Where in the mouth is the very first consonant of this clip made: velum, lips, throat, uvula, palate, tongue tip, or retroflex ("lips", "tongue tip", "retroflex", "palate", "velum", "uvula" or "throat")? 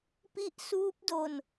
lips